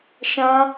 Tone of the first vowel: high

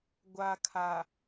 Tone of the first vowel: low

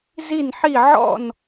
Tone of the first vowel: falling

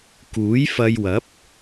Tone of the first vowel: rising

